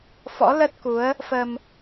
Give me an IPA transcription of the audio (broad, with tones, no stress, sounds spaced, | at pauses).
f ɔ̰˧˥ l ə˦˥ t̚ k u˨˦ ə̯ | f ə˧ m